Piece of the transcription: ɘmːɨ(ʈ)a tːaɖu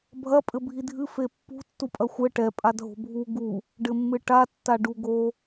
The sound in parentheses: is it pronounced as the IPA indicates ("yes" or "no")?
yes